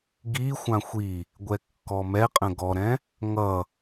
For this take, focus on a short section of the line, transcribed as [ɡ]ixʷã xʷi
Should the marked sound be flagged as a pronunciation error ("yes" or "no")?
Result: no